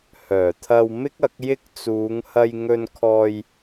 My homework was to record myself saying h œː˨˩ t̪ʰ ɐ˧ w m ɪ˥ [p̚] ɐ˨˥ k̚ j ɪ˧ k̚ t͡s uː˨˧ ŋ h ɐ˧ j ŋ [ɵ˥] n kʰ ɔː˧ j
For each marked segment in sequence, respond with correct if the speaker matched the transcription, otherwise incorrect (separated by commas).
incorrect, incorrect